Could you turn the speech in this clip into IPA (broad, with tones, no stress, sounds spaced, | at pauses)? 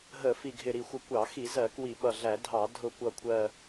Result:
ɦ ə˧˩˧ f i˨˩ ɡʱ ɪ˨˩ ɾ i˨˩ xʷ ə˨˩ kʷ ɑ˧˩˧ x i˧˩˧ z ɜ˧˩˧ k w i˧˩˧ ɓ ʌ˨˩ ɮ æ˧˩˧ dʱ ɑ˧˩˧ dʱ ʊ˨˩ kʷ ʌ˨˩ kʷʰ ɜ˨˩